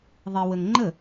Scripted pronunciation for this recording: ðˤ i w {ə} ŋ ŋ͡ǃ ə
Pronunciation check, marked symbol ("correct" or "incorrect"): correct